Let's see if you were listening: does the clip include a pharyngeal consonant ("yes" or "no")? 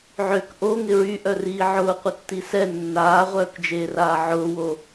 yes